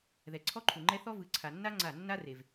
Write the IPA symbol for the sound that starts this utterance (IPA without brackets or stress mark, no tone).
ð